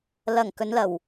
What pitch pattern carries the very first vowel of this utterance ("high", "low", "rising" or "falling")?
low